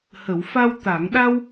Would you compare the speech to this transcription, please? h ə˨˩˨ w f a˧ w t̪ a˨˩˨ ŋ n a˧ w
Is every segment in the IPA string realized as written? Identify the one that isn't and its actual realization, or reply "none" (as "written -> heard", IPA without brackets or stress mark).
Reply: n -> ɗ